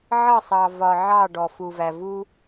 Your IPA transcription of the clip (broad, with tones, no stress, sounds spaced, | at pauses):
ʕ ʌ˦˨ sˤ ɑ˨ v ɒ˨ ʕ ɑ˦˨ ɖ ɔ˨ f u˨ v æ˨ v u˦